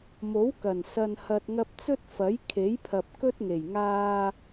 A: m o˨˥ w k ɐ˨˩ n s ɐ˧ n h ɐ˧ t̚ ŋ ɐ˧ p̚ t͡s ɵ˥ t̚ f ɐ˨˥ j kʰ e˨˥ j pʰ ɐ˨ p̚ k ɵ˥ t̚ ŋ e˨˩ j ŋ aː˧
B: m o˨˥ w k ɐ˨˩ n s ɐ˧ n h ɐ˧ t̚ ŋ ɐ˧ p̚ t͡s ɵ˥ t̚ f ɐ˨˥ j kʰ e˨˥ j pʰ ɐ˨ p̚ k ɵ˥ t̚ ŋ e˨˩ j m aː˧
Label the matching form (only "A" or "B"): A